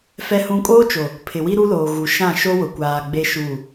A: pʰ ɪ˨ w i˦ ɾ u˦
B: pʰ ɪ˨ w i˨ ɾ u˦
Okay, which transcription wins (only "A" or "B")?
A